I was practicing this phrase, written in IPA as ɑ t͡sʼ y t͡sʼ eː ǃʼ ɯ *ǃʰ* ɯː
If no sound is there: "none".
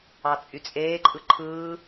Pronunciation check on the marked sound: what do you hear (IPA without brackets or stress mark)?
ǃʰ